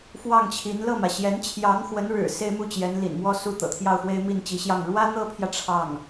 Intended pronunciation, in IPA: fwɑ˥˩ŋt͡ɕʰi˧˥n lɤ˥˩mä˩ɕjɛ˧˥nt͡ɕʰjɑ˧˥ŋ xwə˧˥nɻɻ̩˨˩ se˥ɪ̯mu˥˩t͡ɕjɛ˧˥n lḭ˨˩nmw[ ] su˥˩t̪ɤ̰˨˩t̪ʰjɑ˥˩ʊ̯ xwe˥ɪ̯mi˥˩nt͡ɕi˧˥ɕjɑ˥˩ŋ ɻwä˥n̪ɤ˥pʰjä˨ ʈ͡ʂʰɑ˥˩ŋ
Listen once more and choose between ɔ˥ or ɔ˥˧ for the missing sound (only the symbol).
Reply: ɔ˥˧